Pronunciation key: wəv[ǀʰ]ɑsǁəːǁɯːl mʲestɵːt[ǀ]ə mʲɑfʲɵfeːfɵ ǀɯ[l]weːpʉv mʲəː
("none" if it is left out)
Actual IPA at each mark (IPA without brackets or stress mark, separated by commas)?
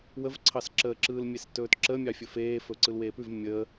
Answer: ǀʰ, ǁ, l